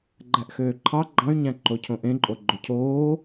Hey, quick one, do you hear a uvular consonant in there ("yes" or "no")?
no